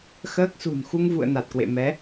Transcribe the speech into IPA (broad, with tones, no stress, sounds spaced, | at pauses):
x əː˦˥ k̚ s ṳ˨˩ n x u˧ ŋ v ṵ˧˨ ə̯ n a˨˩ t̚ k w ḛ˧˨ m ɛ˨˦